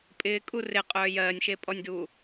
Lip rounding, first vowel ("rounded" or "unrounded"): unrounded